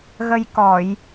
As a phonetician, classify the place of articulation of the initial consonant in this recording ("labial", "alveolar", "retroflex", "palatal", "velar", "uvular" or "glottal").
velar